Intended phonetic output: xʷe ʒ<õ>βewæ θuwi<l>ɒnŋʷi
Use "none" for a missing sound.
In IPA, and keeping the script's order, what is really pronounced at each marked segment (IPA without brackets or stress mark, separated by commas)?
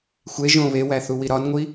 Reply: õ, ɾ